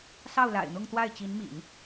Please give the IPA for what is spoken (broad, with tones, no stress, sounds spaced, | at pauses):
s ɑ˥˩ ʊ̯ l a̰˨˩ ɪ̯ n̪ ʊ˥˧ ŋ t̪ w a˥˩ ɪ̯ t͡ɕ i˧˥ n m ḭ˨˩˦ n